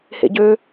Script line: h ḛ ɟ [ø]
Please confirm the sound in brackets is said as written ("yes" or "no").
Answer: yes